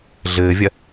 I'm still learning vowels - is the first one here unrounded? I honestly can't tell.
yes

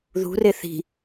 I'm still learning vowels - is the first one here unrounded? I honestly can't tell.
no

